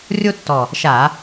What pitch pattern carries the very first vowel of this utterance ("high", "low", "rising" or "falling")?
high